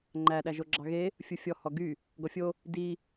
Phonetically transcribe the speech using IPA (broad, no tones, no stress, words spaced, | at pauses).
ŋ͡ǃæ ɗæʒoɡ͡ǁɑɣe | fʲufʲɔ hɔɡy | ɡɔfʲo | di